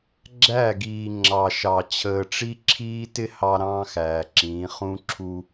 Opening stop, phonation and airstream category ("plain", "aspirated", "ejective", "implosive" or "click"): click